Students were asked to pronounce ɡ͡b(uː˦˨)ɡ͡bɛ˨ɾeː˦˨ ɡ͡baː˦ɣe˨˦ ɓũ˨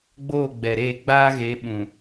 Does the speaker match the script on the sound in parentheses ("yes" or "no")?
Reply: no